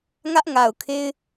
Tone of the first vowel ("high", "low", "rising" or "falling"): high